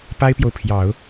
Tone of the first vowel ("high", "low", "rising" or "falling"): high